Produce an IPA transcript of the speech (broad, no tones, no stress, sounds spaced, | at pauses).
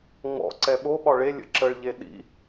ŋ͡m ɔ̰ ǀ ɛ ɓ o ɓ ɒ ɭ e lʲ ə̰ ǁ ə ɭ ʎ e ɗ ḭ